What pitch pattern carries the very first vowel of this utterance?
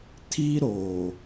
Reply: high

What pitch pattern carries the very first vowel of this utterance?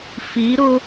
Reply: rising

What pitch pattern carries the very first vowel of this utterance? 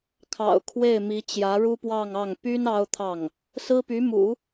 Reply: low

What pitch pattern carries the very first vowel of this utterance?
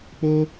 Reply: high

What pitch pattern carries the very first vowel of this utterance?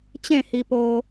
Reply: falling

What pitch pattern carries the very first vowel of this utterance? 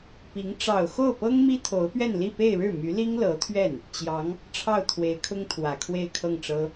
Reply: rising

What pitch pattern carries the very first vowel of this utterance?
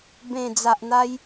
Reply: low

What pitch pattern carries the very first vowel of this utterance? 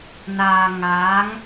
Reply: low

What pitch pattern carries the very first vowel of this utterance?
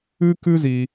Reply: high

